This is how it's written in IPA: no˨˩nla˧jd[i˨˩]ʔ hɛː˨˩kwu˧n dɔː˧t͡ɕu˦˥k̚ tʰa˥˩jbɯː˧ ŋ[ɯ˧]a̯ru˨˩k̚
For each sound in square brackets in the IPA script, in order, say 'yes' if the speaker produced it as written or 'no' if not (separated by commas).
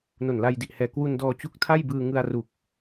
yes, yes